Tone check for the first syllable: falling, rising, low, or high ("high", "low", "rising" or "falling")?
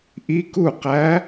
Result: rising